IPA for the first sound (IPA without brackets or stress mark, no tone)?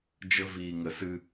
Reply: d͡ʒ